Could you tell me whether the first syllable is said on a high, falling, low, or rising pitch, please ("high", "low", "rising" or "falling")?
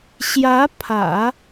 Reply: rising